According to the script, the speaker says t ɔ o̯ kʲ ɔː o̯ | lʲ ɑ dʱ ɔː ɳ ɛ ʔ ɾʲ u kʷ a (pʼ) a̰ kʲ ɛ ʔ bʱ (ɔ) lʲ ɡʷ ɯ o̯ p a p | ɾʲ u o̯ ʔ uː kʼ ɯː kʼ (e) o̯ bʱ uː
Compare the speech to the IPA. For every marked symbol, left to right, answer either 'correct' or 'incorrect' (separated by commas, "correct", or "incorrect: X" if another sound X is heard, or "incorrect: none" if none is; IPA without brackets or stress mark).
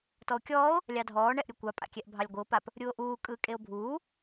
correct, incorrect: ɑ, correct